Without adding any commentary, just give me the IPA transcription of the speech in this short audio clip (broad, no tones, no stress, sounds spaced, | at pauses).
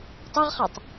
tˤ ɤ ʁ χ a tˤ